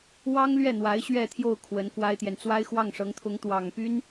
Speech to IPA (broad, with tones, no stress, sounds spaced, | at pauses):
w ɑ˥ ŋ l ɥ ɛ˥˩ n̪ w a˧˥ ɪ̯ ɕ ɥ ɛ˥˧ t̪ʰ j o˥˩ ʊ̯ kʰ w ə˧˥ n k w a˥ ɪ̯ t̪ j ɛ˨ n t͡s w a˥ ɪ̯ x w ɑ˥˩ ŋ ʂ ɤ˧˥ ŋ t̪ʰ ʊ˧˥ ŋ t̪ w ɑ˨˩ ŋ p y˥ n